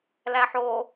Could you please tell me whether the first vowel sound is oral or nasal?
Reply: oral